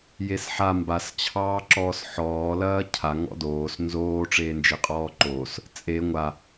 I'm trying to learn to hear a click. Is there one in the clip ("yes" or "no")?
yes